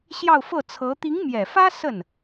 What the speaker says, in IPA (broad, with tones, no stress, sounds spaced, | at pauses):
ɕ j ɑ˥˧ ʊ̯ f ɤ˥˩ t͡sʰ ɤ˧˥ t̪ i˧˥ ŋ m j ɛ˨˩ f ä˥ s ə˥˩ n